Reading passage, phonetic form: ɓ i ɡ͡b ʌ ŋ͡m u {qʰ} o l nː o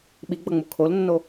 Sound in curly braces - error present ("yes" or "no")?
yes